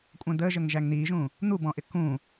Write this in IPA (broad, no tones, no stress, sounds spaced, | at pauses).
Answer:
kʷʼ æ̃ d̪ əː ʒ ə ŋ ʒ æ ŋ n̪ iː ʒ ũ | n̪ u b ɔ̃ ʔ ɪ k ũ